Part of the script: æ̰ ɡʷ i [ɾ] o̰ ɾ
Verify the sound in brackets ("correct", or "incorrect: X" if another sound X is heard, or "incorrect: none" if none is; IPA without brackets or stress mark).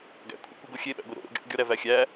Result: correct